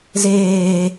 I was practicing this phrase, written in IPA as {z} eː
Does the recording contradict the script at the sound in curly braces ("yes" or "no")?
no